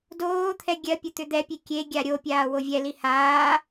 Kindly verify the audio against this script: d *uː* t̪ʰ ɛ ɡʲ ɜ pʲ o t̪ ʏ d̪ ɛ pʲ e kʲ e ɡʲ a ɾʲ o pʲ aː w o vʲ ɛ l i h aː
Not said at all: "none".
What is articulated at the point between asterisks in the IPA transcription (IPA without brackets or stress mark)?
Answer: oː